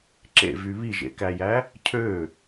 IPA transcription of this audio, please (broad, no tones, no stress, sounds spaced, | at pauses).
ǁ ḛ v y β i ʒ ḛ k æ j æ | cʰ ø